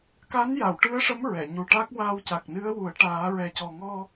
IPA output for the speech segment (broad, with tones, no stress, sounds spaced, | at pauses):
k a˧˥ n j a˨˩˨ w ʈ ɨ˧˥ ə̯ ʂ ə˧˥ m ɹ ɛ˨˩˨ ɲ u˨˩ ʈ a˦˥ k̚ w aː˧ w c a˨˩ k̚ n ɨ˧˥ ə̯ w u˨˩˦ ə̯ ʈ aː˨˩˦ ɹ ɛ˨˩ c ɔ˨˩ ŋ ɔ˧